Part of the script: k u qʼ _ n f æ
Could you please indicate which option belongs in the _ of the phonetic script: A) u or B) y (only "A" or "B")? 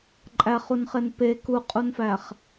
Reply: A